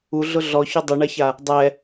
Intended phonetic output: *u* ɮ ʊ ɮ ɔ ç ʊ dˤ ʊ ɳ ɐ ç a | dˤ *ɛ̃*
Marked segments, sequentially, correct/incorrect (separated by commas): correct, incorrect